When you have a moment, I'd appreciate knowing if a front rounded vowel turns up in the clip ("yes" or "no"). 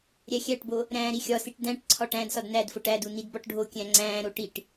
no